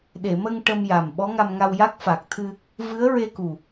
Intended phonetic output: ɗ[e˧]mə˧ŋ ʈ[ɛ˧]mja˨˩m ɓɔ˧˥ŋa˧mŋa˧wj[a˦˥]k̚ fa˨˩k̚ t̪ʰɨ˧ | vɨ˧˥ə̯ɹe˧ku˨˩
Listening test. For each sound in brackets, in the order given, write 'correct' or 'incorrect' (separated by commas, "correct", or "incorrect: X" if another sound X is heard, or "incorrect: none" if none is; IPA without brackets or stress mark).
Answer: incorrect: e˨˩˨, incorrect: ə˧, correct